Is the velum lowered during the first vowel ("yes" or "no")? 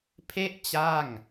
no